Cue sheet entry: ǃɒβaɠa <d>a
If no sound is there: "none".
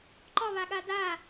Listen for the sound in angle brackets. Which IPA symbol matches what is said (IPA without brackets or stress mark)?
d